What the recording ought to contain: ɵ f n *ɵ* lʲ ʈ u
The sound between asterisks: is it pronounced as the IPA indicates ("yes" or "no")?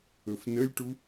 no